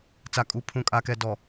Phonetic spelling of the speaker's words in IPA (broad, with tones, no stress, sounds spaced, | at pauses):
t͡s a˨ kʼ u˨ pʰ ũ˨ kʼ a˨ k ɛ˨ d ɔ˨